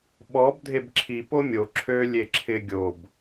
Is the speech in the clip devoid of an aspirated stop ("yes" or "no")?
no